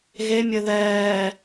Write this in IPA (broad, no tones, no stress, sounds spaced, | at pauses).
ɣ e mʲ ɘ ð ɛː